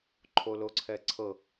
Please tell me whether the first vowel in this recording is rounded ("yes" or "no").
yes